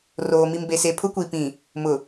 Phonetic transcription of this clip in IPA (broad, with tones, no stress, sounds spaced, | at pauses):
r oː˨ m i˨ m b e˨ s e˨ pʰ ʊ˦ kʷ i˨ p ĩ˨ | m ʊ˨